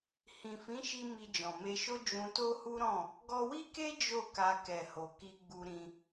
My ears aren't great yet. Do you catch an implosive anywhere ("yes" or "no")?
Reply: no